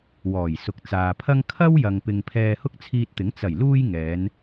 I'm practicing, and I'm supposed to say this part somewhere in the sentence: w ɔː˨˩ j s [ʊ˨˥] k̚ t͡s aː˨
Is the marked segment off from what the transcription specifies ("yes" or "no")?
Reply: yes